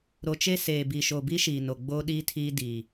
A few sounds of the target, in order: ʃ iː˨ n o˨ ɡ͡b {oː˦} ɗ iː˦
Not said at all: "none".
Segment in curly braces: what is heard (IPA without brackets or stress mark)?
oː˦